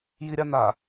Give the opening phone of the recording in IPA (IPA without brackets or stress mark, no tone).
j